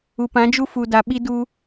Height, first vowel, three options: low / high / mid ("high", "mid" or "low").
high